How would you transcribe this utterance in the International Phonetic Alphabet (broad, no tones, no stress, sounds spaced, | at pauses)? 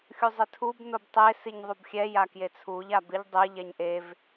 xʲ u zˤ ɪ tʰ u b n o b tˤ e s i ɲ ðˤ u b xʲ ɛ j a k j e t͡sʰ u ʎ a b ɪ ʎ dˤ ɪ ʎ ɛ ɲ ʔ e v